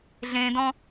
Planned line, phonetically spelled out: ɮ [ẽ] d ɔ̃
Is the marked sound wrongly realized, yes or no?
no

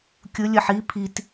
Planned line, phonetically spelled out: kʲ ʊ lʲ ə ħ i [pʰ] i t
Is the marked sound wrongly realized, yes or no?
no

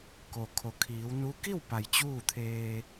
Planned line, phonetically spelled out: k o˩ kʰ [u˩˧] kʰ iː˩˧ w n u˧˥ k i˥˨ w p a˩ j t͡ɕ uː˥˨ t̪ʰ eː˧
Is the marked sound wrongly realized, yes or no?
yes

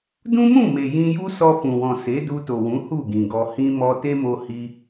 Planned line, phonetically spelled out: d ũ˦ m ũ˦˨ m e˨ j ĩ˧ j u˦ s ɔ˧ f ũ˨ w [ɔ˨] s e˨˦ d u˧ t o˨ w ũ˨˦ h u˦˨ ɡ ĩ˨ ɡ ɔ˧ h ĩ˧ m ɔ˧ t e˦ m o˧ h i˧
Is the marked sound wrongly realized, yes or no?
yes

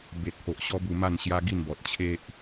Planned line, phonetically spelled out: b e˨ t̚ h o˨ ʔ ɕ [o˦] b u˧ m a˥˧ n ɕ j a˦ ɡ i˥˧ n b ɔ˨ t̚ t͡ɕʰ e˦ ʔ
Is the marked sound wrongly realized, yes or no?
yes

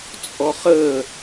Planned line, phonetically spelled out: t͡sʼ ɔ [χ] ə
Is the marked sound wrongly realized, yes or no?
no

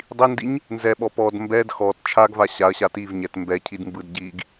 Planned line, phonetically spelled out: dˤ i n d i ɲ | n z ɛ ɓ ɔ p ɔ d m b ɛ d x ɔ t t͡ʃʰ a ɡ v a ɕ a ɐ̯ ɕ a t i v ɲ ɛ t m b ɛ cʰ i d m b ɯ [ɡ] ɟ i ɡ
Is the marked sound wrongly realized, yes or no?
yes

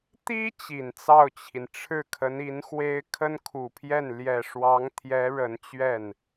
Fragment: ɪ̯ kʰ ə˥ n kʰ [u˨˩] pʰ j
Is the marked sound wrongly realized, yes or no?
no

